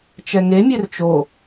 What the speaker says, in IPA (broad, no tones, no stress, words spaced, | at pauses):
t͡ʃɛŋemʲer t͡ʃo